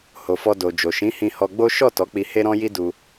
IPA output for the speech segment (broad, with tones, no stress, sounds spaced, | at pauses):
h o˨ f ɔ˧ d o˨ d͡ʒ o˨ ʃ ĩ˨˦ h ĩ˧ h ɔ˧ ɡ͡b o˦ ʃ ɔ˦˨ t ɔ˨˦ k͡p i˧ h e˦ ɾ ɔ̃˦ j i˦ d u˧